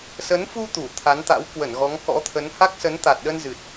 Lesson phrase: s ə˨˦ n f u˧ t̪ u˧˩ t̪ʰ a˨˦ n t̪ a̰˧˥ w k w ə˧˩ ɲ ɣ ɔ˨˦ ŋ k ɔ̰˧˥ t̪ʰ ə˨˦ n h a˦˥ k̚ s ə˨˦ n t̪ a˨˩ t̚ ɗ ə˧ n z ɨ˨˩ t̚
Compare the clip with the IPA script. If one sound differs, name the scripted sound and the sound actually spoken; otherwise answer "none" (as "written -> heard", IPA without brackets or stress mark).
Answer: ɲ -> n